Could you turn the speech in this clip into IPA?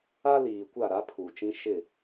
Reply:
a˦ l iː˨ kʷ a˦˨ ɾ a˦ pʰ uː˨ t͡ʃ ĩ˦ ʃ ɪ˦˨

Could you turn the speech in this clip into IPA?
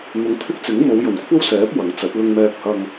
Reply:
n̪ ʊ˨˧ ŋ t̪ʰ ɪ˥ k̚ t͡s ɪ˨˥ ŋ m o˨˧ w j ɵ˨˩ n kʷʰ ɐ˥ w s ɛː˨˥ p̚ w ɐ˨˥ ŋ t͡s ɐ˨˥ t̚ l ʊ˧ ŋ m ɛː˧ k̚ h ɐ˧ ŋ

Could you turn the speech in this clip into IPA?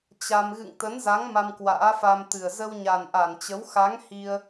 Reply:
t͡ɕ a˧ m ɣ ɨ̰˧˨ ŋ t̪ ə˨˦ n z a˨˦ ŋ m a˧ m k w a̰ː˧˥ f a˧ m t̪ ɨ˨˩ ə̯ z ə˧ w ɲ a˨˩ n ʔ a˧˩ n t͡ɕ ə˨˦ w x a˨˦ ŋ h i˧ ə̯

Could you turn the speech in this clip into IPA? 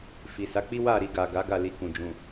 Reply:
f i˨ s a˨˦ k͡p i˦ w a˦˨ ɾ i˧ ɡ a˨ ɡ a˨˦ ɡ a˦˨ l i˧ k ũ˨ d͡ʒ ũ˨

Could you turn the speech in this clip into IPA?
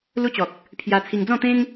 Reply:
l u˦ t͡ɕ ɔ˨ k̚ | pʰ j a˧ t͡sʰ i˧ ŋ d͡z ɔ̃˥˧ t̪ ẽ˦ ŋ

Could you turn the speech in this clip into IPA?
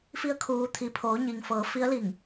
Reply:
f i˧˥ ə̯ kʰ uː˩˧ t̪ʰ i˩ pʰ oː˩˧ ɲ i˩ ŋ f ɤː˩˧ f i˧˥ ə̯ l i˧˩ ŋ

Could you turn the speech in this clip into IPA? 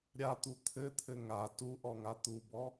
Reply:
ɾʲ a t̪ u t̪ʰ ɘ t̪ʰ ɘ ŋ a t u ʔ ɔ ŋ a t̪ u b ɔ

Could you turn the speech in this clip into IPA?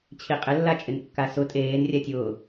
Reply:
t͡ɕʰ i qʼ ɪ lː a t͡ʃʼ ɪ n kː a s ʊ tʼ eː n rʲ a tʲ ʊː

